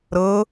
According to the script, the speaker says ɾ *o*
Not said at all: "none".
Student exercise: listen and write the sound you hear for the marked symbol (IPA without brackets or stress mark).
ɤ